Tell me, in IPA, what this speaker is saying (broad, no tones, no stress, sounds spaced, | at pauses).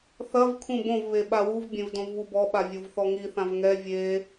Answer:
θ ɐ v kʰ ũ b õ v β e ɓ a w u v bʲ ẽ v d õ v β u b ɔ ɓ a vʲ o v θ ɔ ŋ i θ ã v ŋ ɛ vʲ e